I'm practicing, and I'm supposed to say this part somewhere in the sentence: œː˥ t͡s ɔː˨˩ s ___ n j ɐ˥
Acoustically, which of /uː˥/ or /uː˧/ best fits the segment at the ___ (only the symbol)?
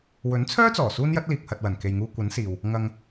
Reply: uː˥